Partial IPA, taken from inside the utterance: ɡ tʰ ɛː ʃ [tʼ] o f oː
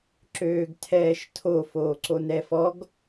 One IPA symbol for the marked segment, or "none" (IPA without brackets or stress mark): tʰ